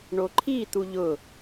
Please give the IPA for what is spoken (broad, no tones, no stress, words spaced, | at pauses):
ɳoǃʰit̪u ʎʊ